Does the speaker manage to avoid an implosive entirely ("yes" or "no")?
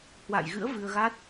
yes